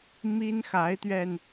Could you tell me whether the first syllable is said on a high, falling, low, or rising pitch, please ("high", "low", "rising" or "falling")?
high